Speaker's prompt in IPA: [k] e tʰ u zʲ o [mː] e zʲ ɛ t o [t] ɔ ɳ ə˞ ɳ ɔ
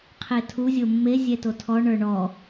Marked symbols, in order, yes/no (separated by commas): no, yes, no